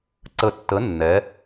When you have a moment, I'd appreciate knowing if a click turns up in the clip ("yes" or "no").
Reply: yes